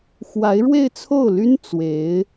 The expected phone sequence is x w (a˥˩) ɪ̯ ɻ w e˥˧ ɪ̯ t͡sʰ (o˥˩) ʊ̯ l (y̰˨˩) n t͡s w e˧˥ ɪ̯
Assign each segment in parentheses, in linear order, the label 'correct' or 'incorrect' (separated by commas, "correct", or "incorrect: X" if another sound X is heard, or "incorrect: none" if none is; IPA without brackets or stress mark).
incorrect: a˧˥, correct, incorrect: y˥